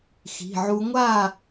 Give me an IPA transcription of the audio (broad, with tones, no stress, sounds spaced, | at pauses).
x i̤˩˧˩ ʕ u˦˥ ŋʷ a˥˨